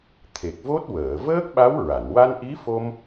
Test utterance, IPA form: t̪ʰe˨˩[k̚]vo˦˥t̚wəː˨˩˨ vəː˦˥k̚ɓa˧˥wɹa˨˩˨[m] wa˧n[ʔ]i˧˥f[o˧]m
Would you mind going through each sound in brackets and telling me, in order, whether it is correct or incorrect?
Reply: correct, incorrect, correct, correct

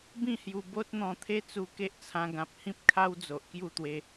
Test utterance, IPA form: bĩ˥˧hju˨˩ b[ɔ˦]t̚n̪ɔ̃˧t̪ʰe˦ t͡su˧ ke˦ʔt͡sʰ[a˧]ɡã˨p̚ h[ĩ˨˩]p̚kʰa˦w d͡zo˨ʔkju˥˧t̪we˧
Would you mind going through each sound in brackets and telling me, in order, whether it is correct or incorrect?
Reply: incorrect, incorrect, incorrect

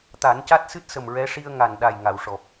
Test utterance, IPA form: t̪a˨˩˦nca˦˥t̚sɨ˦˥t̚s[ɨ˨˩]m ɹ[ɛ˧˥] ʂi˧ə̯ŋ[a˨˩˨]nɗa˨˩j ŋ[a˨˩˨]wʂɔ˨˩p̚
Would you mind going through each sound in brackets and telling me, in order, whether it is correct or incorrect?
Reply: incorrect, correct, incorrect, correct

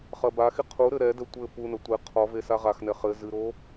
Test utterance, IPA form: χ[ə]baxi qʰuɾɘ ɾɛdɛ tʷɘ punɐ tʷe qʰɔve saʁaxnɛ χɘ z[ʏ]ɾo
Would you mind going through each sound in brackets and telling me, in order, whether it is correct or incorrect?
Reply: incorrect, incorrect

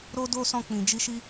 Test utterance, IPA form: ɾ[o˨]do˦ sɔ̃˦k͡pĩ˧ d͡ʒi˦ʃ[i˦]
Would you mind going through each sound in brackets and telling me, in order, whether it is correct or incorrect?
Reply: incorrect, correct

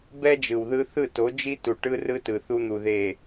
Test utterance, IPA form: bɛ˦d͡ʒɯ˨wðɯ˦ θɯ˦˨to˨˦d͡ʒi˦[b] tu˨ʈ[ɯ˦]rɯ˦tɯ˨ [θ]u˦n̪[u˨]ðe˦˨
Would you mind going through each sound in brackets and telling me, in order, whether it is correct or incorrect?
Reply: incorrect, correct, correct, correct

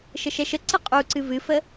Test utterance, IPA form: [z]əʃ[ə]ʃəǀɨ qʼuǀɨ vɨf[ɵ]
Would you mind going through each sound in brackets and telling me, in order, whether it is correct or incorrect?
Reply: incorrect, incorrect, incorrect

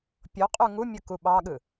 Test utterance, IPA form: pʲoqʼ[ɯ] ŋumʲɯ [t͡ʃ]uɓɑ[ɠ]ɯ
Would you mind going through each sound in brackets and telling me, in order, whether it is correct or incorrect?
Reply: incorrect, incorrect, correct

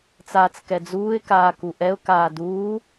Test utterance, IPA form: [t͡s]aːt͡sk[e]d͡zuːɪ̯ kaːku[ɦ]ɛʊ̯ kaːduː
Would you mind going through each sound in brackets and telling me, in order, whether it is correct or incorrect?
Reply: correct, incorrect, incorrect

